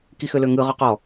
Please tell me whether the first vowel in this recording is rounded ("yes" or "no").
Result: no